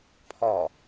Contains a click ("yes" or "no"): no